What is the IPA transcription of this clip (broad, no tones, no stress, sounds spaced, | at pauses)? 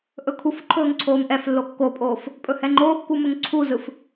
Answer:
ʔ ɵ kʰ u f ǃʰ ɵː ŋ ǀʰ oː m ʔ ɛ f lː o kː o pʼ oː f | pʼ ɵ h ɛ ŋ͡ǃ oː kː u m ɵ ŋ ǀʰ u z ɯ f